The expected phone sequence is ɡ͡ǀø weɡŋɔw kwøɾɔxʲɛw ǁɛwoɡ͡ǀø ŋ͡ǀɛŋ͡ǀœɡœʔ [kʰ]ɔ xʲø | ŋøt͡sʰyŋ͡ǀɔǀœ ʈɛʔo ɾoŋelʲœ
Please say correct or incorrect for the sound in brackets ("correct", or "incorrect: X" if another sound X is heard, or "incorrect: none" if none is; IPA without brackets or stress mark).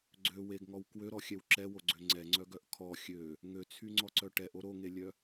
correct